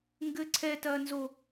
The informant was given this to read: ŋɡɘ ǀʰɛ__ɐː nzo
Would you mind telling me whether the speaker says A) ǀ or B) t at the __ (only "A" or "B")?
B